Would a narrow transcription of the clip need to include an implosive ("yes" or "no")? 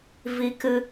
no